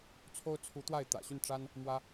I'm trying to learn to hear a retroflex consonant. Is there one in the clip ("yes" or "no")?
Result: yes